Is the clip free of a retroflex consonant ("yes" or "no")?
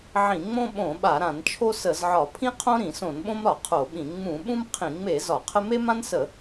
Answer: yes